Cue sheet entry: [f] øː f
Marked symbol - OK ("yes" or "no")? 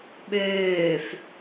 no